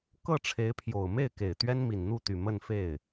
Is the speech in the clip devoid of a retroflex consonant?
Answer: no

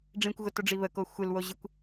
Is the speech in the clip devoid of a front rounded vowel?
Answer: yes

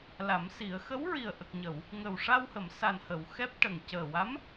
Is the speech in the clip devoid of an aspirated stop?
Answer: yes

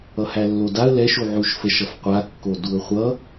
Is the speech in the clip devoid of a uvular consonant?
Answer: no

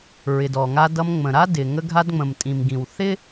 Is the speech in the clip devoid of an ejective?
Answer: no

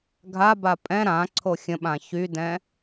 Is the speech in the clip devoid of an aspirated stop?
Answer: no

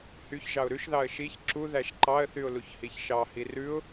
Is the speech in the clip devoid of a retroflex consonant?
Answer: yes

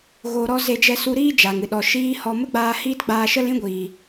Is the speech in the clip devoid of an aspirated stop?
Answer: yes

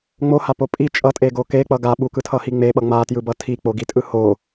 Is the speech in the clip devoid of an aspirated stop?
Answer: no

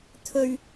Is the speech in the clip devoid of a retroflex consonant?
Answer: yes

